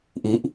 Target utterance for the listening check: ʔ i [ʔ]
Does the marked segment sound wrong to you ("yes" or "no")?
no